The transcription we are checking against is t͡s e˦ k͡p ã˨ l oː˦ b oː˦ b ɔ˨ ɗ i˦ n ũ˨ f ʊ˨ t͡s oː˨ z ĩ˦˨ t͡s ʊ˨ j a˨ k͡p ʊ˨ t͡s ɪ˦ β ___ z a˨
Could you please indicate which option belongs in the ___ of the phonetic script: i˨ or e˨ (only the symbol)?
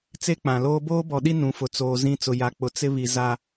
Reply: i˨